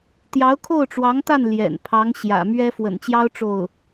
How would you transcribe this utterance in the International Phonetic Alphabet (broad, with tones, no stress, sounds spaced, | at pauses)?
t̪ j ɑ˧˥ ʊ̯ kʰ o˥˩ ʊ̯ ʈ͡ʂ w ɑ˧˥ ŋ t̪ a˥˩ n l j ɛ̰˨˩ n pʰ ɑ˧˥ ŋ ɕ j ä̰˨˩ m ɥ ɛ˥ f w ə̰˨˩ n t͡ɕ j ɑ˥ ʊ̯ ʈ͡ʂ o˥˩ ʊ̯